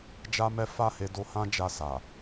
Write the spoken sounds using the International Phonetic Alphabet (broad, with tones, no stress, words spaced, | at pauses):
d͡ʒa˦mɛ˦ fa˦˨he˧ do˧hã˦d͡ʒa˧ sa˨